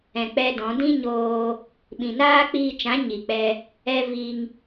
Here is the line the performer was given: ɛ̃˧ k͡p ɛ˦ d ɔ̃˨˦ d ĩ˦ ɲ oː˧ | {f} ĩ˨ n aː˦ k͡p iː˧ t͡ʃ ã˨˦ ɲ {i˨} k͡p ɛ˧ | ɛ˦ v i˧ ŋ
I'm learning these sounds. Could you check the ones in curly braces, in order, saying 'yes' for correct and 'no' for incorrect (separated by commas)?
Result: no, yes